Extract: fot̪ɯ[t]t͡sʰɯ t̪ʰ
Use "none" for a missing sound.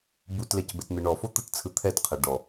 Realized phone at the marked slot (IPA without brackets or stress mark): t